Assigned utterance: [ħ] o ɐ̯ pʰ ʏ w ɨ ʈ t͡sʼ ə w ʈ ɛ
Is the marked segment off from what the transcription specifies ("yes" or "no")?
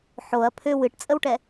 no